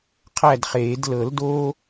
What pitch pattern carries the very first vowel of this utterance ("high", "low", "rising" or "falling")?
falling